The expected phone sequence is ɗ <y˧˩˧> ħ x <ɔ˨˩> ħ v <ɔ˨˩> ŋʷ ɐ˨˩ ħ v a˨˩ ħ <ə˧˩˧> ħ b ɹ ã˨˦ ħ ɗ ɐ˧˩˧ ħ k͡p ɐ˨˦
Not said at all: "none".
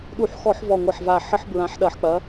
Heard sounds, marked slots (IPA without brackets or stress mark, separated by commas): u˧˩˧, ɔ˧˩˧, ɔ˨˩, ə˧˩˧